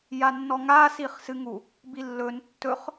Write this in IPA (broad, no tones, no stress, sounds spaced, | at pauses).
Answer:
j a nː ɔ ŋ a s i χ s ɨ ŋ u | b i lː ɵ n tː ɵ χ